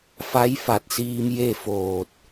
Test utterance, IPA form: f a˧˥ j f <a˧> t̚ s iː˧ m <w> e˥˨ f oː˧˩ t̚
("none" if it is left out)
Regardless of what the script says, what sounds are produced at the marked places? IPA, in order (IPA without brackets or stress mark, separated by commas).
a˧˩, j